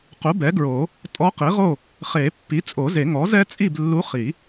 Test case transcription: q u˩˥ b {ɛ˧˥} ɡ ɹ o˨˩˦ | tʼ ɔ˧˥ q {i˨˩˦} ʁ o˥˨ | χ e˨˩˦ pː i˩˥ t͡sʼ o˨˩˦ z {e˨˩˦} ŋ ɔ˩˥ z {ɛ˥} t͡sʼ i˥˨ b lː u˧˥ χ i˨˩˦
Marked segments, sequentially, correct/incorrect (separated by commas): incorrect, incorrect, correct, correct